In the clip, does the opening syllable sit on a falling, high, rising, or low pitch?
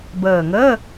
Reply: low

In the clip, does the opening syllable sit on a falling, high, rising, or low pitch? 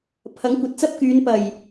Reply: rising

